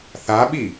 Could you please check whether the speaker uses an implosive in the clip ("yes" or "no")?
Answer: yes